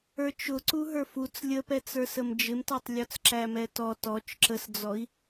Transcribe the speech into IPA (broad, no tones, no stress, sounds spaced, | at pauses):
ə˞ t͡ʃ ʊ ǀ u ɦ ə˞ f u t͡s lʲ ə p ɛ t͡s ə˞ s ə m d͡ʒ ɪ m t ɑ tˤ lʲ ɔ t͡s ǁ æ m ɛ t ɔ t ɔ t͡ʃ ǁ ə s d͡z ɔ i̯